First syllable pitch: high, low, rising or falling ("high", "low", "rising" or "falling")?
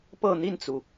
falling